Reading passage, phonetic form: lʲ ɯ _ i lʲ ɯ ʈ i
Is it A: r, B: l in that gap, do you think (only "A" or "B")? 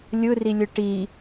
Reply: A